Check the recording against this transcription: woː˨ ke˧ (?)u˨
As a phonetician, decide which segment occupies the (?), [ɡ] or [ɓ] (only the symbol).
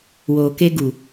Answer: ɡ